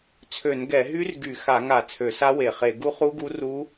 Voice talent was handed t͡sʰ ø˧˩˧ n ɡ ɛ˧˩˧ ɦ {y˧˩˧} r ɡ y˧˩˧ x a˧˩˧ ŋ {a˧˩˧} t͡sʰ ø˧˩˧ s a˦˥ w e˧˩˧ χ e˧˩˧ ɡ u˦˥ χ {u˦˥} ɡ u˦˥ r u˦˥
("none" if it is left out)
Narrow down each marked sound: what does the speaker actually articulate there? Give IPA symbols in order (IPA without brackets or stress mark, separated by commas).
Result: y˦˥, a˧˩˧, u˦˥